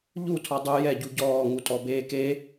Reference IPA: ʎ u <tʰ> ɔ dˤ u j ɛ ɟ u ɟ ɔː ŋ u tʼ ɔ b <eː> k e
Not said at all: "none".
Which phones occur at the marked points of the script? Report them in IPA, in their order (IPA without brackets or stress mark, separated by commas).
tʰ, eː